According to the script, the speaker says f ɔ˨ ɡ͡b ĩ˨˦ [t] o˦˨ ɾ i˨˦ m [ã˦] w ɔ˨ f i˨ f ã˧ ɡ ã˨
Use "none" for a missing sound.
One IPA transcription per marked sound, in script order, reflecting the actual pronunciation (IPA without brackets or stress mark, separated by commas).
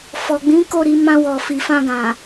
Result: k, ã˧